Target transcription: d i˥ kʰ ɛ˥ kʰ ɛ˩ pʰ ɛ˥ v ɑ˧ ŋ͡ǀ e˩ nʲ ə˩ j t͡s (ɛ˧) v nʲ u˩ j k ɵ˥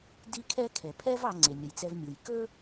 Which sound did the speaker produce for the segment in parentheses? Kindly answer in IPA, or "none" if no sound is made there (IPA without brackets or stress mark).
ɛ˧